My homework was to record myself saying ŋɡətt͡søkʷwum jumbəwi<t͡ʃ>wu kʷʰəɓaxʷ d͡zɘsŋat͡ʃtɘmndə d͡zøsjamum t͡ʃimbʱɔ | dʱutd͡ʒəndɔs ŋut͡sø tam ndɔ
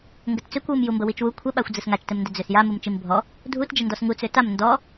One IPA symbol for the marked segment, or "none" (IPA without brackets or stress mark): t͡ʃ